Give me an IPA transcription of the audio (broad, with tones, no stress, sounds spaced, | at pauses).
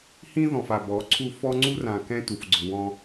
h ĩ˦ ð ɔ̃˨ f a˨ b ɔ˨˦ ǀʰ u˦ f ɔ˦ ŋ͡ǀ u˦ r ã˨ k ɛ̃˦ t u˨ f ɡ͡ǀ ʊ˨ w ɔ̃˦